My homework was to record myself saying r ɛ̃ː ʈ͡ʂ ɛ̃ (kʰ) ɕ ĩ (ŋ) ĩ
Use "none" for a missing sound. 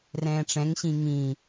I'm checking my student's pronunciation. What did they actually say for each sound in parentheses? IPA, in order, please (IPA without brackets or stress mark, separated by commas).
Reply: ŋ, ŋ